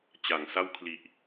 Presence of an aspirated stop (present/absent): present